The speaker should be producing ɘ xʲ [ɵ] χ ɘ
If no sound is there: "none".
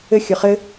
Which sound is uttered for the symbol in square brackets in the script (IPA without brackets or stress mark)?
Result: ɵ